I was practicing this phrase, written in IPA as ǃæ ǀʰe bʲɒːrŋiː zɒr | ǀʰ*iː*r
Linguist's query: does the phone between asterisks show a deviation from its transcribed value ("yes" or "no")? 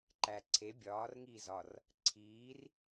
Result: no